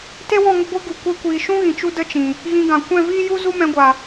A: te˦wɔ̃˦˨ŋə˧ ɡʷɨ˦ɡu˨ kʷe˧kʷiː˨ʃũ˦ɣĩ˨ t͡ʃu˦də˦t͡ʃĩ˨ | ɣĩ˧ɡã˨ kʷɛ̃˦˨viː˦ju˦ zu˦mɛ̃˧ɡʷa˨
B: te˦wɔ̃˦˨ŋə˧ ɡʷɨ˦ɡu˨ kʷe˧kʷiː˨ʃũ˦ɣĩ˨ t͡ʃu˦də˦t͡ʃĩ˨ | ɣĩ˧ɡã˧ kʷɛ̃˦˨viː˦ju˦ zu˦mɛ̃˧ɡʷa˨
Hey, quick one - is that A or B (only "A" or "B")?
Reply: A